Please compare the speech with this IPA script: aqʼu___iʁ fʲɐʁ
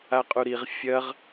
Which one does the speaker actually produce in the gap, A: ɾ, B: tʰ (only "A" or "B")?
A